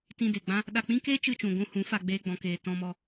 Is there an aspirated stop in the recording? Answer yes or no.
no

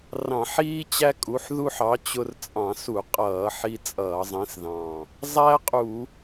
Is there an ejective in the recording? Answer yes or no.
yes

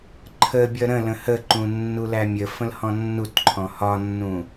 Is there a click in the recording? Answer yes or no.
yes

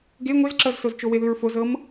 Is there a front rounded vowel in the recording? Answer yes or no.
no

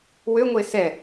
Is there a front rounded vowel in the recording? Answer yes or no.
yes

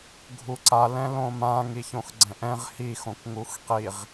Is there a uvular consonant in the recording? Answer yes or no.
yes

